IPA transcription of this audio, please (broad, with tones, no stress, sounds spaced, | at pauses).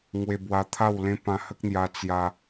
ŋ w e˧ b w a˧ t̪ʰ a˥˧ w l ẽ˦ p ã˧ h ə˦ k̚ n̪ j a˧ t͡s j a˧